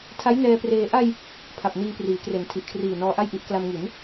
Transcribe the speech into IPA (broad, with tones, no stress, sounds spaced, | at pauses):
tʰ a˦˥ j n ɛː˧ p r eː˧ ʔ a˧ j | pʰ a˨˩ p̚ n iː˧ p r iː˩˦ k r e˩˦ n tʰ i˨˩ ʔ kʰ r iː˨˩ n ɔː˧ ʔ a˥˩ j ʔ i˦˥ ʔ k l a˧ m ŋ i˩˦ n